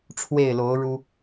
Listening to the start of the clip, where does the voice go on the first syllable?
falling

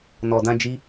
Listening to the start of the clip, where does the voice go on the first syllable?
low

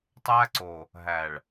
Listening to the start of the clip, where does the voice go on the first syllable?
high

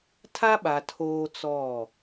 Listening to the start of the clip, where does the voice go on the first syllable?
high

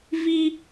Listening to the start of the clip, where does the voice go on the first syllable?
high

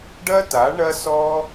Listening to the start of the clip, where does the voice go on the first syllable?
high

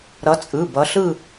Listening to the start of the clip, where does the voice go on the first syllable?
rising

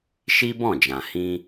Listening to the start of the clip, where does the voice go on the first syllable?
high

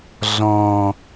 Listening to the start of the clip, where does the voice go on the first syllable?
low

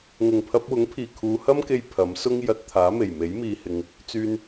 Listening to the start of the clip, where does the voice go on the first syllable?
low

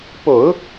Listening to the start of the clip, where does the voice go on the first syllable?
low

